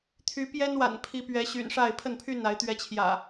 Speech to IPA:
t̪ʰ y˨˦ p j ɛ˦ n w a̰˨˩ n pʰ i˨˦ p ɥ ɛ˨˦ ɕ y̰˨˩ n ʂ a˥˨ ɪ̯ pʰ ə˥˨ n pʰ y˥˨ n a˨˦ ɪ̯ t̪ ɥ ɛ˨˦ t͡ɕʰ j ä̰˨˩

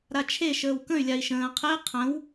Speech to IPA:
ɾ a t͡ʃʰ e ʃ əː w k ə̃ y̯ lʲ a i̯ ʃ ə̃ː qʰ e qʰ ə̃ w

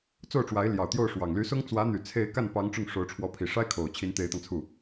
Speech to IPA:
t͡s o˥˩ ʊ̯ ʈ͡ʂ w a˧˥ ɪ̯ l j ɑ˨˩ ʊ̯ t̪ j o˥˩ ʊ̯ ʂ w ɑ˨˩ ŋ l y˧˥ s ʊ˥ ŋ t͡s w ä˧˥ n̪ y˨˩ t͡sʰ e˥˧ ɪ̯ k a˥˩ n p ɑ˧˥ ŋ ʈ͡ʂ ʊ˥˩ ŋ ʂ o˧˥ ʊ̯ ʈ͡ʂʰ w ɔ˧˥ pʰ i˨˩ ʂ a˥ ɪ̯ kʰ o˨˩ ʊ̯ t͡ɕʰ i˧˥ n t̪ e˧˥ ɪ̯ t̪ ɑ˧ ŋ t͡sʰ u˥˩

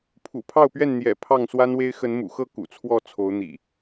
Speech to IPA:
pʰ ṵ˨˩ pʰ ɑ˥˨ ʊ̯ p ɥ ɛ˥˨ n n̪ j ɛ̰˨˩ pʰ ɑ˥˨ ŋ s w a˦ n w e˦ ɪ̯ x ə˨˦ n m ṵ˨˩ x ɤ˥˨ k ṵ˨˩ t͡sʰ w ɔ˥˨ t͡sʰ o˨˦ ʊ̯ n̪ ḭ˨˩

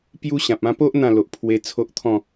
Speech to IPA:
p j u˦ ɕ ã˨ p̚ ã˧ p o˦ ʔ n̪ ã˥˧ l o˨ ʔ pʰ w e˧ t͡sʰ o˦ ʔ t̪ʰ ɔ̃˥˧

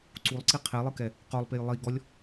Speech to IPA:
ǀ u lˠ ǀ i qʰ e lˠ ɯ k ɛ | q o lˠ p e j lˠ i ɡ ɔ lʲ

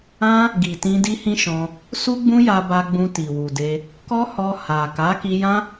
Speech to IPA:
ã˦ | ɡ i˨ t ĩ˧ d i˦ h ĩ˦ ʃ ɔ̃˧ | s u˦ ɡ͡b ũ˦ j a˧ b a˧ ɡ͡b ũ˧ t i˨ w u˨ d e˧ | k ɔ˦ h ɔ˧ h a˨ k a˨˦ k i˧ j ã˦

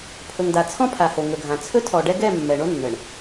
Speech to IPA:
pʰ ɵ˨ ŋ d a˨ t͡sʰ ɔ̃˦ pʰ a˨ h o˨ ŋ ɵ˨ ɡʱ ã˨ t͡sʰ ɵ˦ tʰ ɔ˨ ɖ ɛ˦ ɡ ɛ˦˨ mː ɛ˨ ɳ o˦ nː ə˨ ɳ

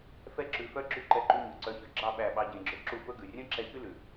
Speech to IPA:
f ɛ˦ ǁ ʉ˧ f œ˦ ɡ͡ǁ ʉ˦ ǃ ɛ˧ ǃ y˧ ɲ ɵ˨ ǀ œ˧ ç ɵ˨ ɡ͡ǁ ɑ˦˨ ɓ æ˦˨ ɓ ɑ˦ ɟ ẽ˧ ɡ͡ǁ ø˦ ǁ u˦˨ f ɵ˦ ɡ ʉ˨ rʲ œ̃˦ ǁ ɛ˧ ç y˦ l ʉ˨

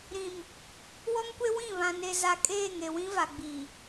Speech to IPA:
ɾ ĩ˨ m | w ɔ˦ ŋ kʷ e˦ w ĩ˦˨ β ã˨ n e˨ z a˨ kʼ eː˦˨ ŋ e˨ w ĩ˦ v a˨ ɡ͡b i˨

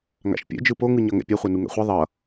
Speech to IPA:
ŋ a̰ ʃ pʲ ɛ̰ d͡ʒ ɯ p o ŋ ɯ ɲ ʌ ŋ ɛ̰ pʲ ɛ χʷ ɛ n u ŋ ɛ̰ χʷ ʌ ðˤ ʌ

